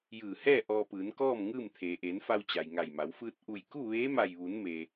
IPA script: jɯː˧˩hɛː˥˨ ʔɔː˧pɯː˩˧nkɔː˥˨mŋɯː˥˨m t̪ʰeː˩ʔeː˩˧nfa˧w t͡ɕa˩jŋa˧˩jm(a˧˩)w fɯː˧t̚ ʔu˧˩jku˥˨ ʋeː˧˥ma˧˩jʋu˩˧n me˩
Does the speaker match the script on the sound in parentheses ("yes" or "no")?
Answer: no